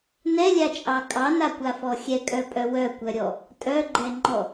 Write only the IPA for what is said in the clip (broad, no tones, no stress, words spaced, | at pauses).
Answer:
nɛlʲat͡ʃʼɑ kʼɑnakʷafɔ xʲɛkʼœpʼœ wœkʷœɾʲɔ | tʼœɡ͡ǃɛŋ͡ǃɔ